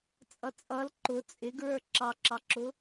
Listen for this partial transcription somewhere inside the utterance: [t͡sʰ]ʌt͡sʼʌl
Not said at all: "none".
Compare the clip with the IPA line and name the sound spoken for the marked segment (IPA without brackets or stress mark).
t͡sʼ